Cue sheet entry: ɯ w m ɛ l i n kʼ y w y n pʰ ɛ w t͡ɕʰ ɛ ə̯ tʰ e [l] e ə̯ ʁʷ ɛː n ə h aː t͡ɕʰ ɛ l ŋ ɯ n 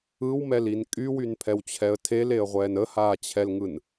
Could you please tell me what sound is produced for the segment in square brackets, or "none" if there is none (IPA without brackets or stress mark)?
l